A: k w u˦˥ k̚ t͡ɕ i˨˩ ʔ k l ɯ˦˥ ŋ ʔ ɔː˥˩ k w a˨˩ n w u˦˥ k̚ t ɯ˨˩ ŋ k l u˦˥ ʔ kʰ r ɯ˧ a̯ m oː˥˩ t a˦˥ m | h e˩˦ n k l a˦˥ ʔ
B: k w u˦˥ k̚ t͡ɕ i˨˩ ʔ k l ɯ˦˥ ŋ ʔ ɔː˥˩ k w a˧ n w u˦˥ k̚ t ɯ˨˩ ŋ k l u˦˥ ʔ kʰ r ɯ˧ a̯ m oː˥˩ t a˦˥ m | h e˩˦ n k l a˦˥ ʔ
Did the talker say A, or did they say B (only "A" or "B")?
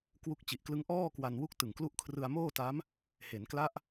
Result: B